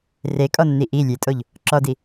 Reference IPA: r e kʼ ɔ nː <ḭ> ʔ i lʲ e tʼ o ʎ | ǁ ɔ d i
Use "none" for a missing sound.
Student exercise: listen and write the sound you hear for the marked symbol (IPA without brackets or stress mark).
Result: i